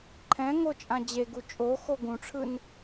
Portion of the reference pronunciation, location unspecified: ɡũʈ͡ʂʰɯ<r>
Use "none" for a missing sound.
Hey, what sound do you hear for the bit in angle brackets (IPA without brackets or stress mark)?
n